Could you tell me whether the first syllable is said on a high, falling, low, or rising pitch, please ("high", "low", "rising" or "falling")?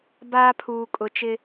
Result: high